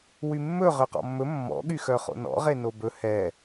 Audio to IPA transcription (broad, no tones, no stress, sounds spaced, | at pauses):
w y mː ɵ ʁ ø q ɔ̰ mː ɵ mː ɔ̰ ɠ y x œ χ o̰ n ɔ̰ ʁ e n o b ɵ h ɛ